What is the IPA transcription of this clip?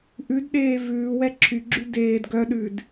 ʔ ʉ d ɗ eː v ʉː w ɛ ǁʰ y ɡ͡ǁ y d eː d ɡ œ ɗ ʉ d

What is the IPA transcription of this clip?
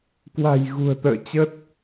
k w a̤˨˩ j ɣ ṳ˨˩ ə̯ t̪ ə̰ː˧˨ t͡ɕ ə˦˥ t̚

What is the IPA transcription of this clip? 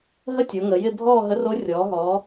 ɦ ə˥˧ tʲ o˩˧ ŋ ə˩˧ j ɪ˥˧ bʱ ɔː˥˧ ɦ ə˧˥ r o˧˥ rʲ ɔː˩˧ ɦ ɔː˩˧

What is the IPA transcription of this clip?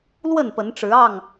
l w ə˥˨ n p ə˨˦ n ʈ͡ʂ ɻ̩˨˦ ɑ˥˨ ŋ

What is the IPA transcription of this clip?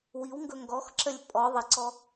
w i w ŋ ɡ ɵ ŋ ɡ ɔ x ǁ ə lʲ pʼ ɔ ðˤ ə ǀ ɔ

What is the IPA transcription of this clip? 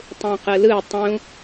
tˤ ũ q ɯ l ɯ tˤ ũ

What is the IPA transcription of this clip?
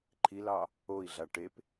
ǃʰ i l ɑ | o i̯ ɮ a ʈ e p

